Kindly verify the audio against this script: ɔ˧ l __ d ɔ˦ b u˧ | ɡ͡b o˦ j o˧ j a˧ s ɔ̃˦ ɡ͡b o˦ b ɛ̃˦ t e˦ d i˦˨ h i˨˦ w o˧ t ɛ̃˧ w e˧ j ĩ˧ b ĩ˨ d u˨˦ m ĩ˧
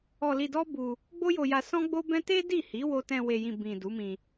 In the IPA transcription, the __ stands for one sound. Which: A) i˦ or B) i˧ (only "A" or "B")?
B